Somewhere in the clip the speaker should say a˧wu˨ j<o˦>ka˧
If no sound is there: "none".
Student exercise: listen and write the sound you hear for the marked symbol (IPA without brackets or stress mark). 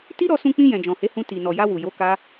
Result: o˨˦